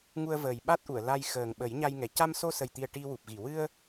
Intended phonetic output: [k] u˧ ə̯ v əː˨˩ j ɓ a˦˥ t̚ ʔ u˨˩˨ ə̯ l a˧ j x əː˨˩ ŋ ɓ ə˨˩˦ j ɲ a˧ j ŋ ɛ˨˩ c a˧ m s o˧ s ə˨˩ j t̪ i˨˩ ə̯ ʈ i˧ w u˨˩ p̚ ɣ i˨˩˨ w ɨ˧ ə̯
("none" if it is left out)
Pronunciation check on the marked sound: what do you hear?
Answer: ŋ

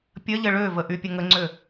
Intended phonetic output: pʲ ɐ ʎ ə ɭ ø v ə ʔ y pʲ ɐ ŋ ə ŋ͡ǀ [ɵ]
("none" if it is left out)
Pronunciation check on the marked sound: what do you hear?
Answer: ø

